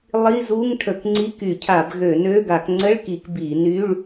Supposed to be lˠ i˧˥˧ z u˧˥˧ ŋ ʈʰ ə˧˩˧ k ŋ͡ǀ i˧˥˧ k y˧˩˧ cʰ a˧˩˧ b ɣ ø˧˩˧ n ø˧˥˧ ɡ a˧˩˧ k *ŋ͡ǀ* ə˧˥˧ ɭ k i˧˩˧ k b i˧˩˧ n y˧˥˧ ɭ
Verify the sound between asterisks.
correct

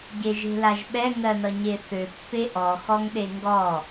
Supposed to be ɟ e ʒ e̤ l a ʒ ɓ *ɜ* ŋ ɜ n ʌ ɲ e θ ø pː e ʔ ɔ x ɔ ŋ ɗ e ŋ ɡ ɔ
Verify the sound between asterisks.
incorrect: ɛ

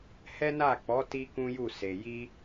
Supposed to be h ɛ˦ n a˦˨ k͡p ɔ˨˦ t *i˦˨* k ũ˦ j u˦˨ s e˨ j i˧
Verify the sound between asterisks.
incorrect: i˦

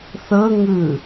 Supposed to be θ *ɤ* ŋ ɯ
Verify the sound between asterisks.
correct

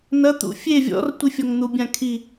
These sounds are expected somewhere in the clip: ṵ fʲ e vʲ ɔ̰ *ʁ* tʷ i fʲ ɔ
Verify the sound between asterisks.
incorrect: r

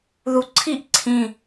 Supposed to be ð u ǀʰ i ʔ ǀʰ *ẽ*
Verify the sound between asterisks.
incorrect: ĩ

